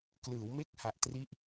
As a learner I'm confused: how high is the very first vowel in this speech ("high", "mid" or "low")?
high